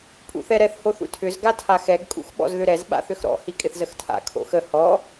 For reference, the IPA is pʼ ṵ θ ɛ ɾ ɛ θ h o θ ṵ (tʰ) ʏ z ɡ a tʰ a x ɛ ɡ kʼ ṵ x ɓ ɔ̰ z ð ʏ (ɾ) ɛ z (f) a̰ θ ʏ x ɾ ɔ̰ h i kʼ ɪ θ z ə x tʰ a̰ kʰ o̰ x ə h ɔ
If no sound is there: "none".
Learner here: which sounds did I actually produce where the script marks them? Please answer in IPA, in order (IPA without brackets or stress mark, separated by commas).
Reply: tʰ, ɾ, ɓ